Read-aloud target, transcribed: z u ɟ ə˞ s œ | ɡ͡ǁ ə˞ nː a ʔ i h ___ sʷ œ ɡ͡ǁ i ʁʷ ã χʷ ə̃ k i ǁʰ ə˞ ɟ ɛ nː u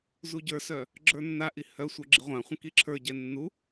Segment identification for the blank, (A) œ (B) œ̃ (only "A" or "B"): A